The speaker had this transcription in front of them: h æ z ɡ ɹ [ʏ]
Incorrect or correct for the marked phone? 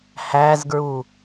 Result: incorrect: u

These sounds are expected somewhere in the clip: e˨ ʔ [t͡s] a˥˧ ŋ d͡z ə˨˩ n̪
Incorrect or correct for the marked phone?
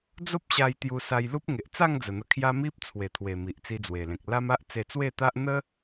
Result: correct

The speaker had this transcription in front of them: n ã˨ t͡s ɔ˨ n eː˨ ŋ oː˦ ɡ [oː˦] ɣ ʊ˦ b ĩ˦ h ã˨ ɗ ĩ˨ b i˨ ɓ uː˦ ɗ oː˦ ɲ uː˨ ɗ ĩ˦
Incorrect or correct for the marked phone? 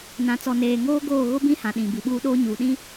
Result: incorrect: oː˦˨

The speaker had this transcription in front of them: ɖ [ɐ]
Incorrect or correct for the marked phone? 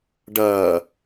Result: incorrect: ɐː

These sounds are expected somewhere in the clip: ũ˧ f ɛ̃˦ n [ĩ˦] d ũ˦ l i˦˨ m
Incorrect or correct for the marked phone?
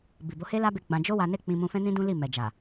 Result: correct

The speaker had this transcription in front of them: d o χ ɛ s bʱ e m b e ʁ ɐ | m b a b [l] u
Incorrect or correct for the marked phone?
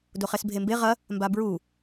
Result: incorrect: ɹ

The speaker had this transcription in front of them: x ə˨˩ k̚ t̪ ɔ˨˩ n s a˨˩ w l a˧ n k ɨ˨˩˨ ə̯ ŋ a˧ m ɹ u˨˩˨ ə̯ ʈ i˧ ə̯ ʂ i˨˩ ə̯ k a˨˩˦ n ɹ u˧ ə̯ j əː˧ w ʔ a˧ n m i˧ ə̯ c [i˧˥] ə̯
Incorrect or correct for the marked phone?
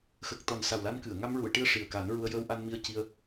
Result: incorrect: i˧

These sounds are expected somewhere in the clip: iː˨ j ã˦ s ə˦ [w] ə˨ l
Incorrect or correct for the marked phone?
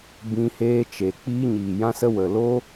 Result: correct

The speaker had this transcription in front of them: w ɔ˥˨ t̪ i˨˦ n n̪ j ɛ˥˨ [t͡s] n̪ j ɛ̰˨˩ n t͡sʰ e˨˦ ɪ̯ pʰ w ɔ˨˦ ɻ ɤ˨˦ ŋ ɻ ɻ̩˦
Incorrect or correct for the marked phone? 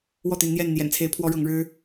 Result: incorrect: n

